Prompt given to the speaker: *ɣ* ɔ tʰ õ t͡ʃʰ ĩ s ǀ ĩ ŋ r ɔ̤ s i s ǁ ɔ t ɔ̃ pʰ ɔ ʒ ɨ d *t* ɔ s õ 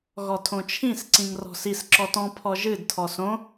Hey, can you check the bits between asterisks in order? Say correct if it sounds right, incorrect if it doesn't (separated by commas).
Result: correct, incorrect